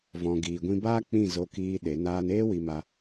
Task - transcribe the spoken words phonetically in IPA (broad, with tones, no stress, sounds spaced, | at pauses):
v ɔ̃˧ ɡ iː˧ ɡʷ ĩ˦ b aː˦ k͡p ĩ˦˨ z o˧ k iː˧ ɗ e˨˦ n aː˧ n eː˦ w i˧ m a˧